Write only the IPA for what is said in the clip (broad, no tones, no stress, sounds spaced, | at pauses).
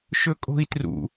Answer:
ʃ ɵ kʼ o̤ i̯ t r ṵ